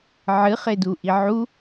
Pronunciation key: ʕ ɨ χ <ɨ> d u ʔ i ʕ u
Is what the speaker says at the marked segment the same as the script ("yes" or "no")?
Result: no